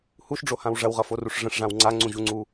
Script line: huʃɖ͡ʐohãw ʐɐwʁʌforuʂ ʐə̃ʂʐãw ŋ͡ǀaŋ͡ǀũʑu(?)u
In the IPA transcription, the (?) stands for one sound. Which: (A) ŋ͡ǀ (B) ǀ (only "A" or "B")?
A